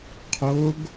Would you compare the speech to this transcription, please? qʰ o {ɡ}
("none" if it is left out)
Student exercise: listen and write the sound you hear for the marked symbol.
ɡ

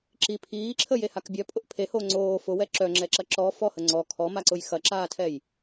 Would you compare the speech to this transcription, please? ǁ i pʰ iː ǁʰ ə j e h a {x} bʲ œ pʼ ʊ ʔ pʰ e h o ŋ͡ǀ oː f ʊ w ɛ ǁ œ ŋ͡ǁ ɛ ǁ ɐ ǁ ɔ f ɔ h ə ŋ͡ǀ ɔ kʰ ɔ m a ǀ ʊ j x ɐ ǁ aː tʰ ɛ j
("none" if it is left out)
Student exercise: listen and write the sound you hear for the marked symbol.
k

